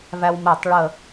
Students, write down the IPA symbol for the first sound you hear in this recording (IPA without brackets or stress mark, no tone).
v